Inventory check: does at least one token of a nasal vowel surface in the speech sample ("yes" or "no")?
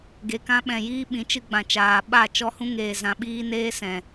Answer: yes